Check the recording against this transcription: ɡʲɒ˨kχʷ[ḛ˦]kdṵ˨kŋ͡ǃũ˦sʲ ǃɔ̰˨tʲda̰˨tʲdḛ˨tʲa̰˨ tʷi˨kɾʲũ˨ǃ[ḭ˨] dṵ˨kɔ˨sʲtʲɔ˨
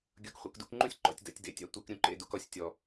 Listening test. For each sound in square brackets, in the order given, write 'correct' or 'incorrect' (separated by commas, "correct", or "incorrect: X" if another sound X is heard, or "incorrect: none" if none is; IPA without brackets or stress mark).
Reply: incorrect: ḛ˨, incorrect: ḛ˨